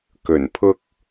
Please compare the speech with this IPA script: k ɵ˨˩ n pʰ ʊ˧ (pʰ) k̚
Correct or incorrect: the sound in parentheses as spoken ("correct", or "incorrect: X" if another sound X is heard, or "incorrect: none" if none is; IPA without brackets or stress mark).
incorrect: none